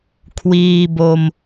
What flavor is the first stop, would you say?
aspirated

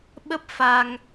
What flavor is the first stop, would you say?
implosive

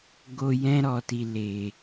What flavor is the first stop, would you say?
plain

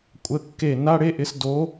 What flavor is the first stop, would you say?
ejective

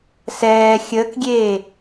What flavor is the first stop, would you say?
plain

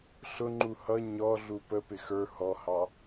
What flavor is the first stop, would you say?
click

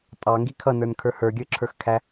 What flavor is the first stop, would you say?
ejective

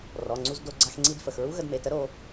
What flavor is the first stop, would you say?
click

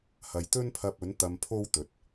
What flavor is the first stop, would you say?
plain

